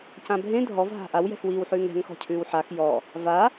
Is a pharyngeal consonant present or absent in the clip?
present